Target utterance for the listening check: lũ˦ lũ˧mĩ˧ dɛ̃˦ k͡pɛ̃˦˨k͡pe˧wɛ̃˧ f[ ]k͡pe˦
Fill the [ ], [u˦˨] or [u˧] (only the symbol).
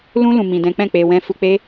u˧